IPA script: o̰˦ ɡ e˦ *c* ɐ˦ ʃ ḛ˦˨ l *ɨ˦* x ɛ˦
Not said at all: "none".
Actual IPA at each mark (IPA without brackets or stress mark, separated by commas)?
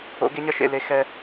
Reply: ɲ, e˦